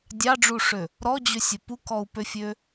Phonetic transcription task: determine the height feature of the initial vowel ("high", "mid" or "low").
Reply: low